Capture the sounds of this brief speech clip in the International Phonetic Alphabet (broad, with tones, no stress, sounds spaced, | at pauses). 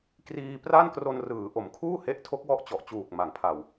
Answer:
k r iː˧ p r a˥˩ n k r o˧ n r ɯː˩˦ ʔ o˩˦ m kʰ uː˥˩ h e˦˥ ʔ tʰ o˦˥ k̚ w ɔ˦˥ ʔ t͡ɕ ɔ˨˩ ʔ t͡ɕ uː˨˩ k̚ m a˩˦ ŋ pʰ a˨˩ w